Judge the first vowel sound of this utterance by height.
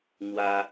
low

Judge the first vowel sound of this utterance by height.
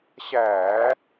low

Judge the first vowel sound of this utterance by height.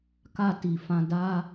low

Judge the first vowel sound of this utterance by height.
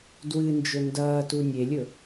high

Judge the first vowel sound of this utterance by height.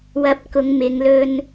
low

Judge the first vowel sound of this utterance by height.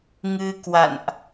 high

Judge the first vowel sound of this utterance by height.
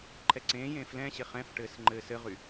mid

